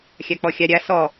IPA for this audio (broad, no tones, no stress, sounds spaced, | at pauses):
xʲ a k͡p ɔ xʲ a ɾʲ a s ɔ